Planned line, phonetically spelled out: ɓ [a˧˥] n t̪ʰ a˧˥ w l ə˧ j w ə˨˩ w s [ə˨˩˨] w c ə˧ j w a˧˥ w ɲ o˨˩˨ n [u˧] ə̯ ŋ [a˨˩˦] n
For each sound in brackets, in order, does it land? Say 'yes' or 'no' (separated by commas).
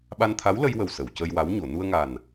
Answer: no, yes, yes, no